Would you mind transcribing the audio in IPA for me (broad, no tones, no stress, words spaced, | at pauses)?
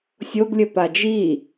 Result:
sʲoɡlʲə pad͡ʒi